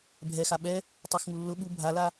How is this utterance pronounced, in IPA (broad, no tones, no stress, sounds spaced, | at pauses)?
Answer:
bʱ ɛ x a ɓ ɛ | tˤ u x ŋ u lː ʊ ɓ u bʱ a l a